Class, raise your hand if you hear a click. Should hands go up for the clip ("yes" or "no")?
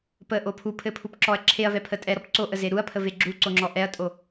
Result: yes